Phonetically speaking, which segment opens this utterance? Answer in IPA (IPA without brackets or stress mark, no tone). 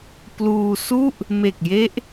p